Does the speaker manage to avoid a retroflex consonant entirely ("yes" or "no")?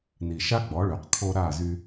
no